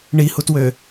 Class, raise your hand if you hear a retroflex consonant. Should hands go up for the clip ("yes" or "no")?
yes